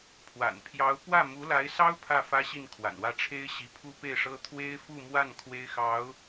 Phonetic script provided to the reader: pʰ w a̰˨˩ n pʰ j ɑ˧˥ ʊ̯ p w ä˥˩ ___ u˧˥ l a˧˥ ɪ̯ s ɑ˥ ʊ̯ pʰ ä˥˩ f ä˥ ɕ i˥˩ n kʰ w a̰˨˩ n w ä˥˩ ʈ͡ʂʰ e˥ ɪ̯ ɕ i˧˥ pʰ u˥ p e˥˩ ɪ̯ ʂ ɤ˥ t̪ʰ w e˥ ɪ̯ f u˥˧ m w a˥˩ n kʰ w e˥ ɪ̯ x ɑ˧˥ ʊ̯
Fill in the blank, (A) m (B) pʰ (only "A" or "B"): A